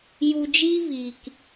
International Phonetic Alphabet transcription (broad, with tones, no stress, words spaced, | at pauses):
ju˧d͡ʒiː˦viː˨k